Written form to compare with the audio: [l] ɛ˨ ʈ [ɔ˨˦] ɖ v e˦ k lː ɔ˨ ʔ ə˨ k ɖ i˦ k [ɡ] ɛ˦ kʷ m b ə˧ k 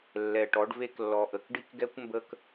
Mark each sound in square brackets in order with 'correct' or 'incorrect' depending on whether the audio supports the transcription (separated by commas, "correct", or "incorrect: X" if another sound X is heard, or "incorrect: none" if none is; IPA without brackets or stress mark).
incorrect: lː, correct, correct